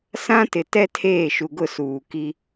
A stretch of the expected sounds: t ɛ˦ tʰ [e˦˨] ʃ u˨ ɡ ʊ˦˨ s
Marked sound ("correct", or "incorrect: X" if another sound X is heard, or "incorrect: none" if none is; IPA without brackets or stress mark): incorrect: eː˦˨